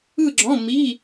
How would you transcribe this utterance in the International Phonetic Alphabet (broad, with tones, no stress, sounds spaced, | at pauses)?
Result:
ɯ˥˧ ɡ͡ǁ ɔ̃˧˥˧ m i˧˥˧